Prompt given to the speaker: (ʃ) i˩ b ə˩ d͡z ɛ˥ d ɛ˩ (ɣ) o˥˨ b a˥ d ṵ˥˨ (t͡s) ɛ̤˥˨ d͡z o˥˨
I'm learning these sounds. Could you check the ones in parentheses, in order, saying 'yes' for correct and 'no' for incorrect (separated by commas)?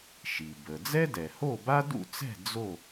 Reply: yes, no, yes